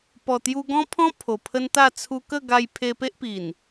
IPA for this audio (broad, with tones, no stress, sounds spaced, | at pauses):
p ɔ˨˩ t̪ j u˧ ɡ ɔ̃˦ pʰ ɔ̃˦ pʰ o˨˩ pʰ ə˦ n t̪ a˥˧ t͡sʰ u˧ k ə˥˧ ɡ a˧ j pʰ e˧ p e˦ ʔ p i˨˩ n